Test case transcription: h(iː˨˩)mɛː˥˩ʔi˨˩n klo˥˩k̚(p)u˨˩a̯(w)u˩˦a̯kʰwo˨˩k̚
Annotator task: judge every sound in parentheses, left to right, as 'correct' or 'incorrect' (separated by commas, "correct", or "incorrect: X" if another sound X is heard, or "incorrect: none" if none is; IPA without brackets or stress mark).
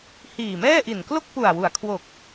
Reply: correct, correct, correct